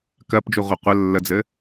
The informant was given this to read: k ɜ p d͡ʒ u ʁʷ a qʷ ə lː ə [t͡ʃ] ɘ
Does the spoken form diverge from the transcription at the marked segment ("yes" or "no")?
yes